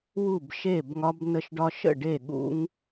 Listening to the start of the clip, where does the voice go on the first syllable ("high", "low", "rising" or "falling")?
falling